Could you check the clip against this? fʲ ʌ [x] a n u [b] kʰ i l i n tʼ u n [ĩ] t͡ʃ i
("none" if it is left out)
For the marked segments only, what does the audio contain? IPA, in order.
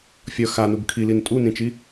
x, b, ĩ

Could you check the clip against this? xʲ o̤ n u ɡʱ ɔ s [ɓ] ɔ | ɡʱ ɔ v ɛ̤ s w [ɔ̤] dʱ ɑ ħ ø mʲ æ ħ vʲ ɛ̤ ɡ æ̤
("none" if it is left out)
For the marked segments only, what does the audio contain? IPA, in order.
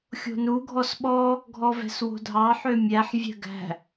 ɓ, o̤

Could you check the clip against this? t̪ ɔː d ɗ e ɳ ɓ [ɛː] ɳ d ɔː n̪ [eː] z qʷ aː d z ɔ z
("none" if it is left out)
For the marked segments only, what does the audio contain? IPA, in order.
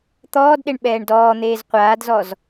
ɛː, eː

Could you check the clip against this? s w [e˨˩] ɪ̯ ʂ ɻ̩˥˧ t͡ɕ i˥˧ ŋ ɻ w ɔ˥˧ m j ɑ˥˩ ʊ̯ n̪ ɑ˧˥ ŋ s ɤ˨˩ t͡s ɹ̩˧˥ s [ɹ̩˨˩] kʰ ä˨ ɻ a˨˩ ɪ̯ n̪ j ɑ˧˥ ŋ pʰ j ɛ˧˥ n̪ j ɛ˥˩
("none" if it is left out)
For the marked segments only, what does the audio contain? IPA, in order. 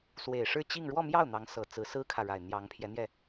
e˨˩, ɹ̩˥

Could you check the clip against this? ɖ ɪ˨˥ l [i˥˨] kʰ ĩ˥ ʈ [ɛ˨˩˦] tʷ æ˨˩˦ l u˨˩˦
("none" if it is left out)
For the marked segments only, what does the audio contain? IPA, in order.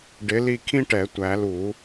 i˥˨, ɛ˨˩˦

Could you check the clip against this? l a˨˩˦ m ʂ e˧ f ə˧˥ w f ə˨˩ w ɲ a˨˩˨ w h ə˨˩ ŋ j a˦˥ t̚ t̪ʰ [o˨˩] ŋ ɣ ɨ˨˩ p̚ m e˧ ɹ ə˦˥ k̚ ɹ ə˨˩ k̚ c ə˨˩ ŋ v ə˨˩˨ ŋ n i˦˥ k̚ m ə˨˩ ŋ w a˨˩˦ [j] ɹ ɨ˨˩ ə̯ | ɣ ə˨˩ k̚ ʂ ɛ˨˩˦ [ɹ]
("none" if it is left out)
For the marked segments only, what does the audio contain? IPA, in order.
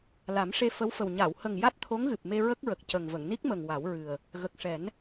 o˧˥, w, n

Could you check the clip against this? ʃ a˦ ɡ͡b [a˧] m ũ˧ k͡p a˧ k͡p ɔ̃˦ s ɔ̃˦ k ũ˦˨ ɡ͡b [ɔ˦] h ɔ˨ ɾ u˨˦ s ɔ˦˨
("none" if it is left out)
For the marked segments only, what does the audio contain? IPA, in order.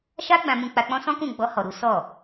ã˧, ɔ˧

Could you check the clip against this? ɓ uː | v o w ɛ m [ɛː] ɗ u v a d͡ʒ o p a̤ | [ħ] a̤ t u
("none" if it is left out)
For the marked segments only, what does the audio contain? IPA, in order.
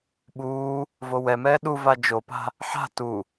ɛː, ħ

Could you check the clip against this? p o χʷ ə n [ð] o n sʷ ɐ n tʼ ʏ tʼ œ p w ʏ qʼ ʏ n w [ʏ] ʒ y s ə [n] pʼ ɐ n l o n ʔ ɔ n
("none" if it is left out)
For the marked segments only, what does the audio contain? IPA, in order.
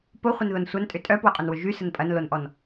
ð, ʏ, n

